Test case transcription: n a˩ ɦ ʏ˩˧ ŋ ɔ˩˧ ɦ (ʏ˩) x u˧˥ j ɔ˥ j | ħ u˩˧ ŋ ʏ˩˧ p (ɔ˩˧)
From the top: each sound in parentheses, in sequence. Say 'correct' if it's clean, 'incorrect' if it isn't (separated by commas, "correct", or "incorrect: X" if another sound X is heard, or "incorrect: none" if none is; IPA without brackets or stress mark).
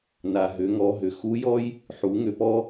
correct, incorrect: ɔ˧